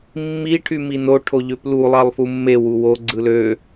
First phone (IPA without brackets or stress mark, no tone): mː